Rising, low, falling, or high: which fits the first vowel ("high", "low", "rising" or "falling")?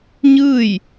falling